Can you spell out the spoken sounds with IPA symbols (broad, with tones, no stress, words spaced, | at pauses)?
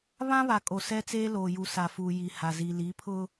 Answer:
βã˦βa˨ kʼo˨sɛ˦t͡seː˦loː˨ ju˨sa˨fuː˨ ji˨ha˨zi˨ li˨˦pʰʊ˦